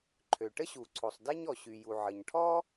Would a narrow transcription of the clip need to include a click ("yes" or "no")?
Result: yes